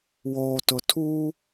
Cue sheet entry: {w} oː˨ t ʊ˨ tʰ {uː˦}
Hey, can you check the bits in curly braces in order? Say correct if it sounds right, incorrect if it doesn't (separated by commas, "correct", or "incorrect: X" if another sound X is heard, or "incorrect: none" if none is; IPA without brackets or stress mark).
correct, correct